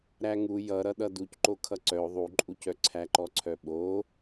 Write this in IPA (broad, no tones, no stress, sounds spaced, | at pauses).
ɾ æ ŋ u j ʌ ɾ ʌ ɗ ʌ d u c ǃ o kʰ ʌ ǀ œ o̯ ðˤ u ǃʼ u c œ ǀʰ æ ǃ ɔ ǀʰ œ ɓ o